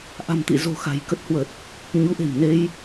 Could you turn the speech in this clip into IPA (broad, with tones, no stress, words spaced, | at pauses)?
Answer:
ʔa̤˨˩mt̪ḭ˧˨zo̤˨˩ xa̤˨˩j kə˦˥t̚hwə˨˩t̚ | ɲu˨˦ʔe̤˨˩mne˧j